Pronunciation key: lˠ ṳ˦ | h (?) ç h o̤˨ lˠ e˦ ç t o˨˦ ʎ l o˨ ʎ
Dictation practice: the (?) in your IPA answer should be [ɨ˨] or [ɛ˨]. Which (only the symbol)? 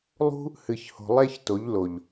ɨ˨